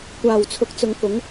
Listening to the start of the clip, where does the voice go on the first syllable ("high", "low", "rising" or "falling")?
low